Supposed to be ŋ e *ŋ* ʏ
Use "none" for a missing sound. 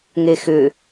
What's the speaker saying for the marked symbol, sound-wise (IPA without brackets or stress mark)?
x